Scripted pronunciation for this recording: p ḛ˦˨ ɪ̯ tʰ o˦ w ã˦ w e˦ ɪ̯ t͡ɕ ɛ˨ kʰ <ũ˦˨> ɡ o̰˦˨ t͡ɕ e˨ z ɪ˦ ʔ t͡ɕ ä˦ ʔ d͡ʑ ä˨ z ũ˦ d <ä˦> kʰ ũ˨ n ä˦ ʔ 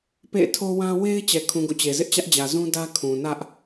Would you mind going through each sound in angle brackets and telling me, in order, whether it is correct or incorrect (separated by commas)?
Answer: incorrect, correct